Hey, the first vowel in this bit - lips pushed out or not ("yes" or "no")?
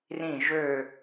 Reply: no